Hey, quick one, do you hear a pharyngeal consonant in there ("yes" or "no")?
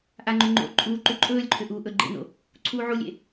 yes